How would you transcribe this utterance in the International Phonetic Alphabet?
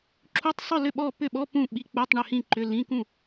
ǁʰ u˧˥˧ tˤ sˤ ʏ˥˨ l ʏ˥˨ ɓ ɔ˥˨ p ʏ˥˨ ɓ ɔ˧˥˧ p ũ˥˨ ɓ i˧˥˧ k͡p u˧˥˧ tˤ ɳ ʏ˥˨ h ĩ˥˨ ǃ ʏ˧˥˧ l ĩ˧˥˧ k ũ˥˨

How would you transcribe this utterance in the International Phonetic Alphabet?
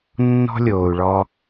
nː ɔ̤˥ lʲ oː˩ u̯ ɭ ɔ˧

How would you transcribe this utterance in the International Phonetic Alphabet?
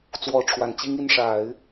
t͡s w ɔ˧˥ ʈ͡ʂʰ w a˨˩ n t͡ɕ i˥ ŋ i˥˩ n ʂ a˨˩˦ ɪ̯

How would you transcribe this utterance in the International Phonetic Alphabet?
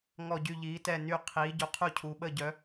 ŋ ɔ˦˨ ɟ y˦˨ ʎ iː˨˦ t ɛ˦˨ n y˦˨ qʰ iː˨˦ ɟ u˨˦ qʰ u˦˨ cʰ u˨˦ ɓ əː˦˨ ɟ œ˨˦

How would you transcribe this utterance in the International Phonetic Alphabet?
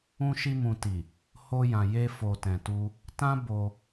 ũ˧ ʃ i˧ m ũ˨ t i˨ | h o˧ j ã˨ j e˧ f o˨ t ɛ̃˨ t u˧ | t ã˦ b o˧

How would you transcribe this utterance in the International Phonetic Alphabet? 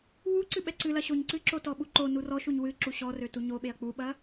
w u ǀ ɨ ɓ ɛ ǀ ɨ l ɐ ɕ o ɲ ǀ ɨ ǁ o t ɔ ɓ u ǃ o n u r ɔ ʃ u ɲ w ɨ ǁ u ɕ ɔ r ø t u ɲ o ɓ e ɐ̯ k͡p u ɓ ɐ

